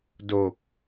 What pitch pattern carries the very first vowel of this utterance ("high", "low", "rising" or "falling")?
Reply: low